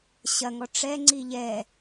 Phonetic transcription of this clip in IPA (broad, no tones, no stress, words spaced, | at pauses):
ɕɐŋɔ ʈ͡ʂɛŋ͡ǀi ʎɛ